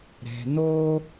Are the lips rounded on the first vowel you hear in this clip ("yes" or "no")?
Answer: no